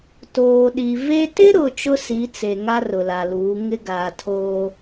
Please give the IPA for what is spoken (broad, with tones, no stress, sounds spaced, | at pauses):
t oː˨ ɗ i˨ v e˦ t ɪ˦ ɾ ʊ˨ t͡ʃ ʊ˦ s i˨˦ t͡s e˨ ŋ a˦ r ʊ˨ l a˨ l uː˨˦ ŋ ɪ˦ ɡ aː˨ tʰ oː˦